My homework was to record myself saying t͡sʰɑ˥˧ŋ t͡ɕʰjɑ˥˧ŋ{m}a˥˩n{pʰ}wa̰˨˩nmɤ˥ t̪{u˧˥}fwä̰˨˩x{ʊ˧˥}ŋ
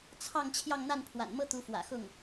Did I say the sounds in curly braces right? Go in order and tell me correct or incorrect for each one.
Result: incorrect: n̪, correct, correct, incorrect: ʊ˥˩

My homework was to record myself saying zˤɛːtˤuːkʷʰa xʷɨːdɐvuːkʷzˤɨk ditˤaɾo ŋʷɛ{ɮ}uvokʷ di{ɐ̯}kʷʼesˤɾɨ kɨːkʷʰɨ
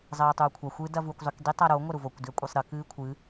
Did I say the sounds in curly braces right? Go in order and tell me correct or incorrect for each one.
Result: incorrect: ɾ, correct

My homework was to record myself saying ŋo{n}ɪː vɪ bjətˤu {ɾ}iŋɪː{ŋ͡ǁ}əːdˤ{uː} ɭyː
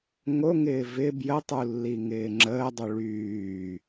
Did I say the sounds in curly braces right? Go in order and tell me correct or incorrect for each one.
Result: incorrect: ŋ, incorrect: lː, correct, incorrect: u

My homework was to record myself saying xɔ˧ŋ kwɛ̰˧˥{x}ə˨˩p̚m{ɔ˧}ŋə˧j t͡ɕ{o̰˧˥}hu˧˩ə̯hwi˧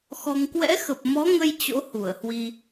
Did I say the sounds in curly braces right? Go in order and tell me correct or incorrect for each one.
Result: correct, incorrect: ɔ˨˦, correct

